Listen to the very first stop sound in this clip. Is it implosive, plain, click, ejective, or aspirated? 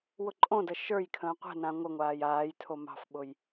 click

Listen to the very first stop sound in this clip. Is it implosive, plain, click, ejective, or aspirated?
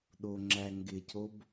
implosive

